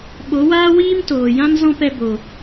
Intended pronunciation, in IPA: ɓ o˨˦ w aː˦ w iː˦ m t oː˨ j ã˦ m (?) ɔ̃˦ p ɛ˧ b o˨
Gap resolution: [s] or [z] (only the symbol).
z